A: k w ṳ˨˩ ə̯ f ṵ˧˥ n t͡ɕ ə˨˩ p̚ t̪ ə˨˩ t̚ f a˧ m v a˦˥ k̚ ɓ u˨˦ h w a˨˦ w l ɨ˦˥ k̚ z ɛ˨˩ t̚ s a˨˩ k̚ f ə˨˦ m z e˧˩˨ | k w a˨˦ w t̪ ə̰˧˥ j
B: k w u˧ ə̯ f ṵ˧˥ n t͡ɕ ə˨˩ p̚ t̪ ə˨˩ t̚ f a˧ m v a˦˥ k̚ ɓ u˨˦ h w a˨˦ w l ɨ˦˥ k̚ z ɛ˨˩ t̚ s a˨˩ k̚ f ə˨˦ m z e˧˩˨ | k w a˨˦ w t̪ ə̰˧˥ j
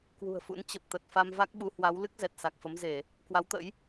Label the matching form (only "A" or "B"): A